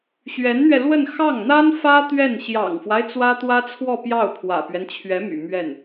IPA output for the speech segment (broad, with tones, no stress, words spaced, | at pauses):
ɕɥɛ˧˥nn̪ɥɛ˧lwə˥˧n xɑ˥˩ŋn̪a˥nfä˥ t̪ɥɛ˥˩n ɕjɑ̰˨˩ŋfwa˦ɪ̯ t͡swä˥t̪wä˥t͡sʰwɔ˥˧pjɑ˥˩ʊ̯ pʰwä̰˨˩pɥɛ˦nt͡ɕʰɥɛ˧˥my̰˨˩ mɥɛ˥˩n